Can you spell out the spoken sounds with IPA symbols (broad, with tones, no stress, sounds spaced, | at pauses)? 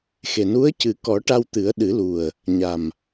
x e˨˩ n u˧˥ ə̯ c ɨ˨˩ k ɔ˨˩˦ ʈ a˧ w t̪ ɨ˨˩˦ ə̯ ɗ ɨ˨˩˦ l u˨˩ ə̯ | ɲ a˨˩ m